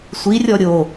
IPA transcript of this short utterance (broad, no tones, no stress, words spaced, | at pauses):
sʷirʲɔ ɾʲo